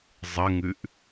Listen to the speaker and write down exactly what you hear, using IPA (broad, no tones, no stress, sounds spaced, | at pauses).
zˤ ə ŋ ʉ ʔ